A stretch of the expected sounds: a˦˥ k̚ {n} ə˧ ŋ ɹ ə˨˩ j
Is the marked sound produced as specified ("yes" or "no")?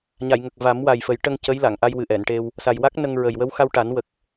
yes